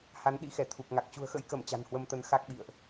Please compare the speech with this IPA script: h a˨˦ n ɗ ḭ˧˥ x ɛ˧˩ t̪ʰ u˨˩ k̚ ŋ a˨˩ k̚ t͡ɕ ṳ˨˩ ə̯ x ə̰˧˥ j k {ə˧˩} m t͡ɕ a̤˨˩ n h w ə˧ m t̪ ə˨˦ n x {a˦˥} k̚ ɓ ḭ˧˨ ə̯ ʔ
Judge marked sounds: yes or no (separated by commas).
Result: yes, yes